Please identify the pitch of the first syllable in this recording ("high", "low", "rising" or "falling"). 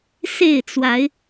falling